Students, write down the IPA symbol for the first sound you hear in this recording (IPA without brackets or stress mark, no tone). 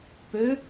p